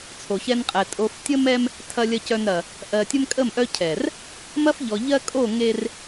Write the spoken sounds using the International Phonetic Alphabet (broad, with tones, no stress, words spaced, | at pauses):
t͡sʰo˨çɛ˦nqʼɛ˨ tʼo˨f tʲə˦mɛ˦m | tʰɐ˨lʲɐ˨cœ˨nɾɐ˨ | ʔɜ˨tʲə˦mkʼə˦˨mʔœ˦ cʰɛ˨r | mɐ˦fʎɔ˨ ʎɜ˦kʼo˦˨ ŋe˦r